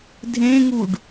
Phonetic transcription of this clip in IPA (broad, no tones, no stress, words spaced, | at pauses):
dʱẽŋuɖ